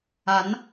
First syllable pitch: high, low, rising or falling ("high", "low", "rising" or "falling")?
rising